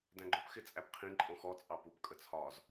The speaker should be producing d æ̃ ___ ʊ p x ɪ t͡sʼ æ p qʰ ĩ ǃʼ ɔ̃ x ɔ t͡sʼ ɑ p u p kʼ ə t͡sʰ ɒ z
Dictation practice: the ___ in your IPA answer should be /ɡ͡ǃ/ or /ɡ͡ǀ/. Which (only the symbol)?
ɡ͡ǃ